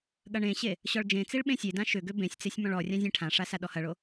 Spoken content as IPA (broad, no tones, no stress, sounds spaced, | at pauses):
ɠ ɐ ɳ ẽ ɕ e | ɕ ɔ ɭ d͡ʒ ẽ t͡s i ɭ ɓ ẽ sʲ e d ã ʃ ʏ ɡ ʏ b ẽ sʲ t͡s e sʲ m ɔ̃ ɭ ɔ rʲ ã zʲ ẽ ʈʰ ã ʂ a s a ɗ ɔ h ɐ ɭ o